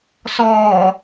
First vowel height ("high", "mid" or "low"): mid